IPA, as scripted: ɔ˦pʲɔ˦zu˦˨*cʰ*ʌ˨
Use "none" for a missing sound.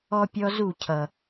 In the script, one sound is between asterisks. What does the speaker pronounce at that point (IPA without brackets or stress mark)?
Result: cʰ